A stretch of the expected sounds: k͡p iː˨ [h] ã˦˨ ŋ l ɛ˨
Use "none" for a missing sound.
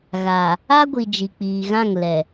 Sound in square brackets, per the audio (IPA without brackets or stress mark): ɣ